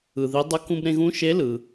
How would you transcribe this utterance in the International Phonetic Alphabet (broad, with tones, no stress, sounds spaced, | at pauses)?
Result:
ɯ˩ ð i˩˧ dˤ ʌ˧˥ k ũ˧ b ɾ ẽ˧ ɣ ũ˧˥ ʃ e˧˥ l ɯ˩